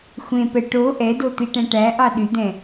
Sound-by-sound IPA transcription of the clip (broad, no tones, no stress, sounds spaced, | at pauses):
xʷ ẽ p ɛ ʈ o ʔ ɛ d o t̪ i ʈ ɛ̃ ʈ æ ʔ ɑ ɗ y d̪ ɛ̃